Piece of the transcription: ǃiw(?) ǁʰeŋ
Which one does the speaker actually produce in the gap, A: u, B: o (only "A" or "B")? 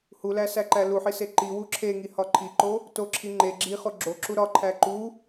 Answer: A